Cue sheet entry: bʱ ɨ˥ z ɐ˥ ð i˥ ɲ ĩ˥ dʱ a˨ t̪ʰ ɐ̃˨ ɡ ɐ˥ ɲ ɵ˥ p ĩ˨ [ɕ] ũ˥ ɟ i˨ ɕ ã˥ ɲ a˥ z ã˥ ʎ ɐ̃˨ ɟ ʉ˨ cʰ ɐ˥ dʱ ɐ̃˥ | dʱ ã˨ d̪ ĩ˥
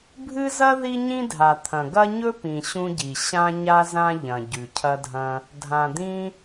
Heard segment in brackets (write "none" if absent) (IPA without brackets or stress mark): ɕ